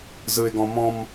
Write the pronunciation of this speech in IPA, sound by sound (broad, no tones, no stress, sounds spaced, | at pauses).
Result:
z ɯ ɪ̯ ɡ ɔ̃ m ɔ̃ m